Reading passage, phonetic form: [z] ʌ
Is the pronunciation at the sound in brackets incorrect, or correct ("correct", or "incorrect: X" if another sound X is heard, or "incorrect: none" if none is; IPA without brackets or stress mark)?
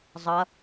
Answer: incorrect: zˤ